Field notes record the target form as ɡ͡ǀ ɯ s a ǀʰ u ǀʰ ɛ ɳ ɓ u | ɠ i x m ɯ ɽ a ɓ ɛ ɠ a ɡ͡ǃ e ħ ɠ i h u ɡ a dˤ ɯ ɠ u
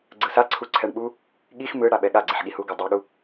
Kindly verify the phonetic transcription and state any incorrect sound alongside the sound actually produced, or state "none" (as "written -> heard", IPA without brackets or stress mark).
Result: ɡ͡ǃ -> ɡ͡ǀ